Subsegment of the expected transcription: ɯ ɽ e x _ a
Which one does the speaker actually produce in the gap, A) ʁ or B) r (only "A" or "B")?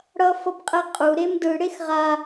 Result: A